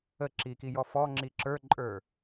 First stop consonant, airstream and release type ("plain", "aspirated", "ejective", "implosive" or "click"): click